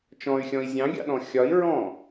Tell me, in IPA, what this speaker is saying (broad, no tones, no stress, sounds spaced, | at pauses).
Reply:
t͡ʃ ɔ̃ y̯ xʲ ɔ̃ i̯ zʲ ɑ̃ ɡʲ ɑ̰ ɗ ɔ̃ xʲ ɒ i̯ ɹ ɔ̃